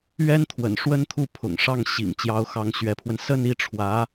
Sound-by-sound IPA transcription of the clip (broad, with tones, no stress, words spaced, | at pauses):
ɥɛ˥nt̪ʰwə̰˨˩nʂwə˥nt̪ʰu˥˩ pʰʊ̰˨˩ŋ ʂɑ˥˩ŋɕḭ˨˩ŋ t͡ɕjɑ˧˥ʊ̯xɑ˧˥ŋɕɥɛ˧˥pʰwə˧n sə˥˧ni˥˩ʈ͡ʂʰwä˧˥